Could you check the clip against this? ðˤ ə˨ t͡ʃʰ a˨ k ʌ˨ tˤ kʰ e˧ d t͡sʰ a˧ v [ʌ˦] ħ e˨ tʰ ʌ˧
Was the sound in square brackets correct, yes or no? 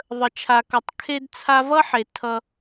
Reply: yes